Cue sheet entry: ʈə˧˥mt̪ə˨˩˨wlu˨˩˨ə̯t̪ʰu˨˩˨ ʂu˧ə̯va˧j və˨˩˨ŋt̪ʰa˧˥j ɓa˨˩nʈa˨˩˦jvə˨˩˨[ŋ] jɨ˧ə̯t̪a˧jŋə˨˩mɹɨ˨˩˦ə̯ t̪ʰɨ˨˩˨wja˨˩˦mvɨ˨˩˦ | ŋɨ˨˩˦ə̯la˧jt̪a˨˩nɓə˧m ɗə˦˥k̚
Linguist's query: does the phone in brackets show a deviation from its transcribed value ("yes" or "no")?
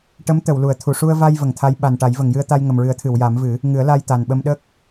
no